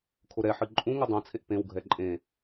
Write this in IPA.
kʰoɾɛħɨ ǃʼũ ŋudˤõt͡sʰeʔ pẽwɡʱɛ ǃʼẽ

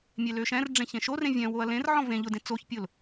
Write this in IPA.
mʲeløʃɛ̃rɖ͡ʐẽ çẽʃorẽ vʲɛ̃woɐ̯ lẽrʕɔ̃ vẽ ʎʊdẽ t͡soçpʲʊl

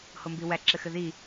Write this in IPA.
hombiwæ ǁɘxɘði

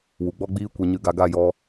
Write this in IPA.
wu˨ɡ͡bɔ˦ɡ͡biː˦ kʷe˧ɲɨ˧ɡa˧ ɡa˦˨jɔ˧

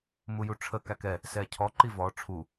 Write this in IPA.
mujuʈ͡ʂʰə kækɛ | sɛcʰɔ ǃivɔ ʈ͡ʂʰu

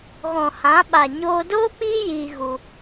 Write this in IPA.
ɣɔ̃˨hã˨˦ ɓa˨ ɲoː˧ doː˦k͡piː˦ jiː˧ ɣu˧

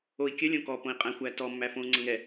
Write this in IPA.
oi̯kʲəlʲõ kɔpõi̯ qʼæ̃xʷæ tɔmːæfõu̯ ŋ͡ǀɤŋɛ

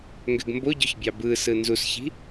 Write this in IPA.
ŋɡøɡmboɟøç bʲɑbɯsɯ nzusçi̤

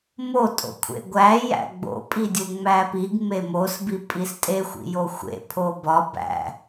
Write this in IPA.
mo tʼo̰kʷʰḛɡʷæ jæ̰ɡ͡bo̰pʼidʲu ŋ͡mæpiɡ memosbi pʼistʼexʷḭjo xʷḛ pʰobɒ bæ̰

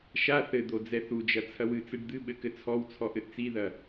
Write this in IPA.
ʃa θɘd̪o d͡zɛθud͡ʒɐ t͡sʰɐwɨt͡sɨɖ d̪ɨɓɘ kɘt͡sʰɔwt͡sʰɔ ʔɘʔt͡siðɐ

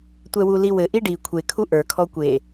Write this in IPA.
tʷɛwuliwɘ ʔiɖi kʷʰe kʰuʔə˞ kʰɔkʷe

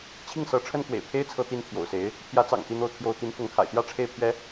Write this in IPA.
t͡ɕʰi˥˩ŋsɤ˧˥ʈ͡ʂʰə˥nkwḛ˨˩ɪ̯ pʰe˥ɪ̯t͡sʰɤ˧˥t̪i˧˥n t̪ʰjo̰˨˩ʊ̯se˧˥ɪ̯ | pʰjä˧˥t͡sɑ̰˨˩ŋ t̪i˥˧n̪o˥˩ʊ̯t̪ʰjo˥ʊ̯ t̪i˧˥nfʊ˧˥ŋkʰa̰˨˩ɪ̯t̪jä˥ ʈ͡ʂʰe˥˩ɪ̯pʰɥɛ˥

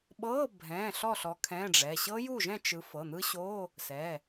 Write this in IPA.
ɓɤ˧˥˧bʱɛ̃˩˧˩ ɬɔ˥˨ɬɔ˨˦ kʰɛ̃˧˥˧ɖ͡ʐɛ˩˧˩ ɕɤ˦˥ju˥˨ʒɛ̃˥˨ t͡ʃɯ˨˦fɤ˩˧˩n̪ɯ˦˥ɕo˧˥˧ | sɛ˩˧˩

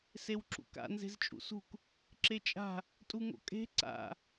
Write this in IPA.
sewǁṵka̰ nze̤zt͡ʃʼṵsṳk | ǁet͡ʃʼa̤ | tʼuŋo̰kʼe̤ ǀa̰

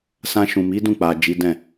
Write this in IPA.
sã˧ʃũ˨ mi˨˦dũ˦˨k͡pa˨ d͡ʒi˨˦dɛ̃˦˨

